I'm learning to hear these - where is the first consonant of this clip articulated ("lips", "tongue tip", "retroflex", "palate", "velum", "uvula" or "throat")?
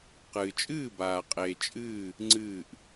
uvula